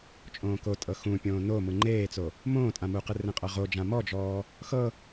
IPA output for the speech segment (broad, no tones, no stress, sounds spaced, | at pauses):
t͡ʃʼ õː k o tʼ ɤ x ũ pʲ õː n o m ɯ ŋ͡ǃ eː t͡s o | m õː tʼ ã m u q ɯ r ẽ qʼ ɤ ʁ o d͡ʒ ã m ɔ d͡ʒ ɔː | x ɤ